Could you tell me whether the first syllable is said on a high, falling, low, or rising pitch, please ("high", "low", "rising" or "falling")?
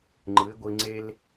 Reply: rising